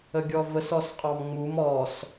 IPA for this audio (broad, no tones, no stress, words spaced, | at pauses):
əɡʲɔvəs ɔsqʼɑmŋ͡mum ɔs